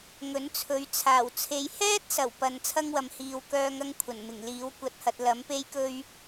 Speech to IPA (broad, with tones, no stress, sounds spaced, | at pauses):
ŋ ɵ˨˥ n t͡sʰ ɵ˨˥ ɥ t͡sʰ aː˨˩ w t͡sʰ e˨ j h ɛː˥ t̚ s ɐ˨˩ w p ɐ˧ n t͡sʰ ɐ˥ ŋ w ɐ˨ m h iː˨ w k œː˥ ŋ ɐ˥ ŋ kʷʰ ɐ˨˩ n m ɪ˨˩ ŋ l iː˨˥ w kʷ ɐ˧ t̚ h ɐ˨ t̚ l ɐ˨˥ m p e˥ j k ɵ˥ ɥ